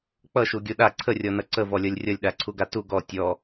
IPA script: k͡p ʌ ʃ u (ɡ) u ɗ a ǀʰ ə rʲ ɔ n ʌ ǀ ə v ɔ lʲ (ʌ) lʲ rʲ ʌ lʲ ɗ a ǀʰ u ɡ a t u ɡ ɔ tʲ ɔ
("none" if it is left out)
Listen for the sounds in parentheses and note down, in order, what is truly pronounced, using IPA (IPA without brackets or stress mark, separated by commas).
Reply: ɡʲ, ʌ